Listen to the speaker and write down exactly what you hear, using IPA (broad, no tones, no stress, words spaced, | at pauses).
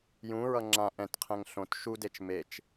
jũɹʌ ŋ͡ǁã ʔɛ̃tqʰɛ̃ŋ ɬõt ʃudet͡ʃ met͡ʃ